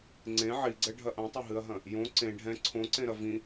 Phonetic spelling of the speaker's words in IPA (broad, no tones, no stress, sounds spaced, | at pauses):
ŋ͡ǀ ẽ ʕ i ɡ͡ǀ ɛ ɖʱ ɐ ʔ ɐ̃ tˤ ɐ ɦ ɨ ɐ̯ ɦ ɐ̃ | j õ ǀ ẽ ɖʱ ɛ̃ ǀʰ õ ǀ ẽ ɾ ɐ v ĩ